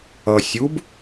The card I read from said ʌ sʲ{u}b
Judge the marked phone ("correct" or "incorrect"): correct